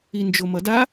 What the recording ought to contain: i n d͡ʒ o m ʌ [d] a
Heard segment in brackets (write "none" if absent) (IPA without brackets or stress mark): d